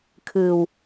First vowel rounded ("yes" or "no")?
no